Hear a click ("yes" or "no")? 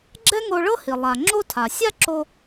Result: yes